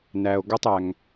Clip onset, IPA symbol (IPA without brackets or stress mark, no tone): n